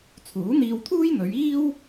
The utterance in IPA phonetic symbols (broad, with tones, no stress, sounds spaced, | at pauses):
t͡sʰ uː˨˥ n̪ iː˧ w t̪ʰ uː˥ j n̪ ɵ˨˧ ɥ iː˥ w